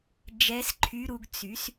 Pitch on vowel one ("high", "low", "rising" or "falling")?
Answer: rising